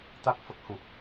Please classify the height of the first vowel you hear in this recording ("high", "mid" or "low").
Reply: low